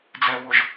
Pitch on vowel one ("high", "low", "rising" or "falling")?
low